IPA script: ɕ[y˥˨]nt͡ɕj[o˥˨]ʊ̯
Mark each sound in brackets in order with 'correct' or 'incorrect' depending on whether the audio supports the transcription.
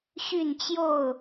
correct, correct

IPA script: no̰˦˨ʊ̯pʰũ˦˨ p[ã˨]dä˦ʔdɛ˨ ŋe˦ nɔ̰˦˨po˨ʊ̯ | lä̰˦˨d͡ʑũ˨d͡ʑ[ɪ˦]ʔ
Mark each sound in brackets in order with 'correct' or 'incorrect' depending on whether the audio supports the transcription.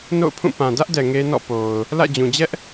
correct, incorrect: ɛ˦

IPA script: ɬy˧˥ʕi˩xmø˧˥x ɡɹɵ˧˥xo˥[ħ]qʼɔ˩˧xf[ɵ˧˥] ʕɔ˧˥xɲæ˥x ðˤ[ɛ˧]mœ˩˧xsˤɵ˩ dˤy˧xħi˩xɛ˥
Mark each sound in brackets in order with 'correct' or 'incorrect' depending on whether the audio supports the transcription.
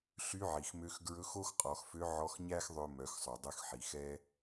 incorrect: x, incorrect: ø˧˥, incorrect: ø˧

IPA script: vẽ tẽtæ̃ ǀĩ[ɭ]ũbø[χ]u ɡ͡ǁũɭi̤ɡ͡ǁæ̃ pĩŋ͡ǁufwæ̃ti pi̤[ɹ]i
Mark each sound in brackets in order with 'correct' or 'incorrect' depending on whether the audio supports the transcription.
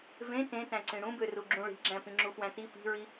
incorrect: ɽ, incorrect: r, correct

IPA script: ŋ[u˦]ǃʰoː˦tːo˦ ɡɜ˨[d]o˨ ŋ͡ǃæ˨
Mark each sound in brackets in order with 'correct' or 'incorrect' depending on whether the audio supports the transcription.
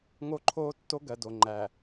incorrect: o˦, correct

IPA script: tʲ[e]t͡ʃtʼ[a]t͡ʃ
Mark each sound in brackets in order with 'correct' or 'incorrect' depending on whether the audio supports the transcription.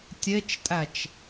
correct, incorrect: æ

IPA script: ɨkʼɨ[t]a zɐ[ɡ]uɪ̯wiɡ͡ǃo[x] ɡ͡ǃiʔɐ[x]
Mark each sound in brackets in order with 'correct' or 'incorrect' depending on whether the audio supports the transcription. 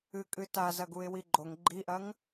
correct, correct, incorrect: ŋ, incorrect: ŋ

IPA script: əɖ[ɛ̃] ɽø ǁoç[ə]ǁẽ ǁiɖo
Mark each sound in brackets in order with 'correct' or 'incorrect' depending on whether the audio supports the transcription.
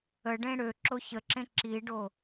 incorrect: ẽ, correct

